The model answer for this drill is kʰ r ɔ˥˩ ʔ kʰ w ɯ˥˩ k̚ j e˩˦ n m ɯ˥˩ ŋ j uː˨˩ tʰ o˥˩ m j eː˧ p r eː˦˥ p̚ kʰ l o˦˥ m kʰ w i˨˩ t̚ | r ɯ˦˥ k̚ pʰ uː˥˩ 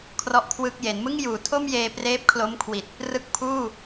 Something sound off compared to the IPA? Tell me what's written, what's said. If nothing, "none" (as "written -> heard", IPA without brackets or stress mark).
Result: none